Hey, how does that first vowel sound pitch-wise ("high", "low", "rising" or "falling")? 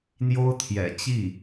high